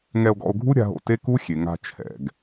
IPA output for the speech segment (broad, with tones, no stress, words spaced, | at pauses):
ŋɛ˧o̯ɡɔ̰˧o̯ɡʱu˦ ɾʲa̤˧ɦo̰˧ te˦ku˦xʲe˨ŋa̤˧ t͡ʃʰɛ̰˨ɡ